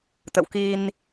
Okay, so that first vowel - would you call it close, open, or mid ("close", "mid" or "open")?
mid